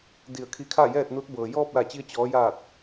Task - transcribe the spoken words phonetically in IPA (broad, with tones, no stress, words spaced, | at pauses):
di˧˩ə̯kʰi˧kʰa˥˨jɛː˥˨t̚ nu˧˥t̚bɤː˩ jɔː˥˨p̚la˧˩t͡ɕi˧ə̯ t͡ɕɔː˩˧jaː˧˩t̚